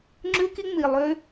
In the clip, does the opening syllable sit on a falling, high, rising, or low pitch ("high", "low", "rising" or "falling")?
high